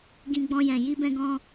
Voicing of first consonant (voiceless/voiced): voiced